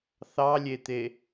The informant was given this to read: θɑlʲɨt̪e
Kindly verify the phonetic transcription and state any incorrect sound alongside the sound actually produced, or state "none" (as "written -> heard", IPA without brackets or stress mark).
ɨ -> e